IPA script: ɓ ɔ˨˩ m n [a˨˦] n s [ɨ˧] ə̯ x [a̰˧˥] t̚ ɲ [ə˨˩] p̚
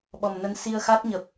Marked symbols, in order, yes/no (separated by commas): no, no, no, yes